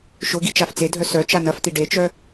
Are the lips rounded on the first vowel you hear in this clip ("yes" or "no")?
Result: yes